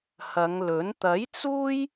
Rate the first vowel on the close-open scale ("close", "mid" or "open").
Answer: open